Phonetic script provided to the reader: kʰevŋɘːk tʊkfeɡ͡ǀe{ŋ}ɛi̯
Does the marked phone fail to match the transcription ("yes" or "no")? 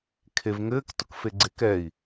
yes